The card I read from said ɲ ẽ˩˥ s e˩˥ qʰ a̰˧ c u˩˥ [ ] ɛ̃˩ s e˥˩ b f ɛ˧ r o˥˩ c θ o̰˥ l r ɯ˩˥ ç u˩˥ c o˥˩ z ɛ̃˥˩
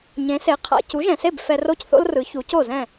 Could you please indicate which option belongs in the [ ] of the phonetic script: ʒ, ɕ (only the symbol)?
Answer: ʒ